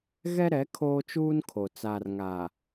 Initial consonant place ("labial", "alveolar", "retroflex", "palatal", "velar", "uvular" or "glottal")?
velar